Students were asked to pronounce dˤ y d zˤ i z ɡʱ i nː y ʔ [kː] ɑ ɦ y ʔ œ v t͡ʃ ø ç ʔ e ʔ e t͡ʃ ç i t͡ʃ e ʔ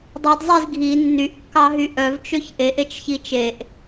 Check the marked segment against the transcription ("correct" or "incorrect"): correct